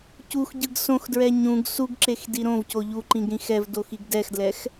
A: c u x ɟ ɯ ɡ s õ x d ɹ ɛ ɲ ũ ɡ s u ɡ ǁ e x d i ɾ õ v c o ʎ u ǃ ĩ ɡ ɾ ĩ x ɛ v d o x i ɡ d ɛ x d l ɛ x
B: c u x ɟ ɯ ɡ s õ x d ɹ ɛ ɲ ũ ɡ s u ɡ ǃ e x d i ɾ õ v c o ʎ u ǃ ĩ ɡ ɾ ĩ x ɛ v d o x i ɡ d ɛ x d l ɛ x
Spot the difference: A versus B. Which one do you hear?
A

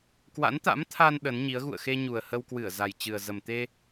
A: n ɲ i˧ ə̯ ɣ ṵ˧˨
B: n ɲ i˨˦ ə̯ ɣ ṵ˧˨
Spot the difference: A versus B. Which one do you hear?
B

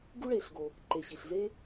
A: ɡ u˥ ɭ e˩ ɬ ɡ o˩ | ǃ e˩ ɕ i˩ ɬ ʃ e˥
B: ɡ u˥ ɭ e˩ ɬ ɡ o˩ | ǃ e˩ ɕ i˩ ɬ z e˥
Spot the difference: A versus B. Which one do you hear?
B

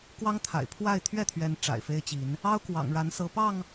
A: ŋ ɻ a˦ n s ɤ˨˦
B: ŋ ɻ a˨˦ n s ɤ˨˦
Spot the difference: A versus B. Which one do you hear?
B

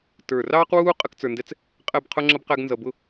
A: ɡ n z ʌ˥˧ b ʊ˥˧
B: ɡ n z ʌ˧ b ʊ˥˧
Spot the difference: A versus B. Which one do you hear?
B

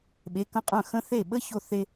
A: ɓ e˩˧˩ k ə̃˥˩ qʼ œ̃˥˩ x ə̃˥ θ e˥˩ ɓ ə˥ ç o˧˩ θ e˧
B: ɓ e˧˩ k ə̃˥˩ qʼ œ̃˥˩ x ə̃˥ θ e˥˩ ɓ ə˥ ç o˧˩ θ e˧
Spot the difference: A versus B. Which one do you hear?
A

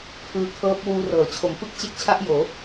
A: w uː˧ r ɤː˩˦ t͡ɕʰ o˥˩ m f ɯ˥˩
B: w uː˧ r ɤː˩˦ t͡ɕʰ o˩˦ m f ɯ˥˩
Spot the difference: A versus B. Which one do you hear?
B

